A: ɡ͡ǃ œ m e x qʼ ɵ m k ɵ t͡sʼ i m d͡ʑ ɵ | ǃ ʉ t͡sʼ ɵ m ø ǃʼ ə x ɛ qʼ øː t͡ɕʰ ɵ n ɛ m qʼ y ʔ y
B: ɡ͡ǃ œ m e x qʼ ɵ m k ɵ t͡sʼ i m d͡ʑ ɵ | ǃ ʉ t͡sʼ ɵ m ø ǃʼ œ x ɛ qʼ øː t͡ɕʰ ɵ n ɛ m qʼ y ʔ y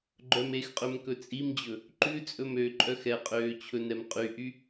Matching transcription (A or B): B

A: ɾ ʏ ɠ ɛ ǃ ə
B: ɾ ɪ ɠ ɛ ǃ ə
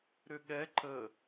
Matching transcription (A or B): A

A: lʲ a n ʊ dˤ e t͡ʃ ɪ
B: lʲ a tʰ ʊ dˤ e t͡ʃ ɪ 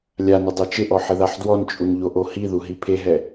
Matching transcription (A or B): A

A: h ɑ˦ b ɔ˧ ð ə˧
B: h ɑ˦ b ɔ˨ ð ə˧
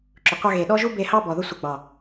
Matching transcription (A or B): B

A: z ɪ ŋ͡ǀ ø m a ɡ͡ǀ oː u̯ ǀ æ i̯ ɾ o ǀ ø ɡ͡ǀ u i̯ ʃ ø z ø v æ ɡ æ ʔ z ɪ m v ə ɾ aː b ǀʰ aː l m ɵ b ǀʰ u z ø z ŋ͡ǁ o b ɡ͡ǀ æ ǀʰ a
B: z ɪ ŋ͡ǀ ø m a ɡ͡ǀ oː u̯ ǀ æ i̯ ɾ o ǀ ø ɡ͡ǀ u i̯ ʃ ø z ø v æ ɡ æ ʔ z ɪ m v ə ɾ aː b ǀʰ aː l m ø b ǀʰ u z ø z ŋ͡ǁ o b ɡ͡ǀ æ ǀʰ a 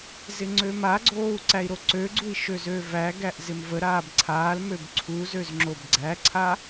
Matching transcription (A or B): B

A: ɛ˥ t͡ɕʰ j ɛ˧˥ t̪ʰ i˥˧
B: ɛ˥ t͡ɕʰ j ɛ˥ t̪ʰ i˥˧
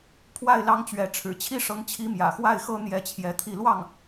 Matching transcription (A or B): A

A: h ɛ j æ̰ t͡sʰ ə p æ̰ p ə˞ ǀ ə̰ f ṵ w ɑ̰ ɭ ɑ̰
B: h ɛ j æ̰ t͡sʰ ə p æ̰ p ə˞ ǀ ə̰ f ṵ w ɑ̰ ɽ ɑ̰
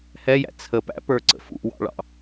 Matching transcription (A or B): A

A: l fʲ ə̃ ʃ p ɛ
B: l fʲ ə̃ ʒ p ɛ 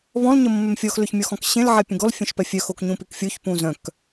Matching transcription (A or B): A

